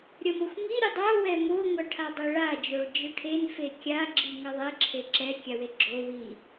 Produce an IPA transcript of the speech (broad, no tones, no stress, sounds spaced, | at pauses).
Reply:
ɾʲ ʌ m o xʷ ŋ i ɾʲ u dˤ ʌ w ɛ m o ŋʷ ʌ ʈʰ a dˤ e ɭ a d͡ʒ o ɭ d͡ʒ ɯ ʈʰ e n f e kʲ a ɡ͡ǁ i ŋ ʌ ðˤ ɛ ǁʰ e ǁ ɛ kʲ a w e ɡ͡ǁ o w i